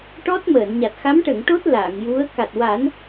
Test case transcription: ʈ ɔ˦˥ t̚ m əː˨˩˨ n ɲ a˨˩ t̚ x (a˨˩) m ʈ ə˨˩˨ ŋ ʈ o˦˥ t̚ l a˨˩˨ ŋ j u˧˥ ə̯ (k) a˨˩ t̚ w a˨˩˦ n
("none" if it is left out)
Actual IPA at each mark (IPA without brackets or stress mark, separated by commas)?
a˧˥, k